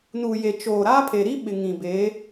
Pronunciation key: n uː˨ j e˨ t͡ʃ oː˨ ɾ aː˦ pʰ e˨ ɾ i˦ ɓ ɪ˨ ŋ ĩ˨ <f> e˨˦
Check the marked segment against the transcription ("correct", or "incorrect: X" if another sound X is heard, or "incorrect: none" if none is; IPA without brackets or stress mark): incorrect: b